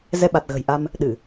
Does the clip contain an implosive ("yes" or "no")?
yes